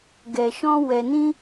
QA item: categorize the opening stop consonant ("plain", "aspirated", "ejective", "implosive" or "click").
plain